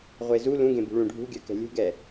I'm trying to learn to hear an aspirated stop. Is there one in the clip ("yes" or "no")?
no